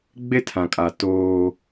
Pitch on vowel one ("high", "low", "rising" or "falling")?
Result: high